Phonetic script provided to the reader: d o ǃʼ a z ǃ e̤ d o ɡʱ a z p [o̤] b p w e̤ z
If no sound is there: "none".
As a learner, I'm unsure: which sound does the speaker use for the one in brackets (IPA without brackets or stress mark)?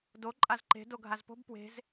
o̤